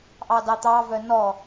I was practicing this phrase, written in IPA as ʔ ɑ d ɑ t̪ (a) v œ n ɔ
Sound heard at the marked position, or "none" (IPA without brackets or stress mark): ɑ